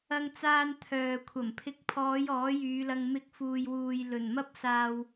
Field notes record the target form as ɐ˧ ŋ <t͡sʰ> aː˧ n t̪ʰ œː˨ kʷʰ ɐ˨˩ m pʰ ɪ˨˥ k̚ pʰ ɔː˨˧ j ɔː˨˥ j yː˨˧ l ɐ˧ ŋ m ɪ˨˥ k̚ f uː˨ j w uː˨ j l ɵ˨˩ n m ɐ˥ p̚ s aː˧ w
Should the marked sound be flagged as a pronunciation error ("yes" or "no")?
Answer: yes